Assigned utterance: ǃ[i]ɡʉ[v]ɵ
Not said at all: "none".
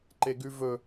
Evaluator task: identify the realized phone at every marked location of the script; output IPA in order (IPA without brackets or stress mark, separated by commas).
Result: e, v